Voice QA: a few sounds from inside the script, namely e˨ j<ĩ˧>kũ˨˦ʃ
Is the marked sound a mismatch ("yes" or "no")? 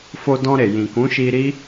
yes